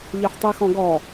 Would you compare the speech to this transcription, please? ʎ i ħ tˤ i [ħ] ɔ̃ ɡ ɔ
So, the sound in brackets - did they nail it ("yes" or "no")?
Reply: no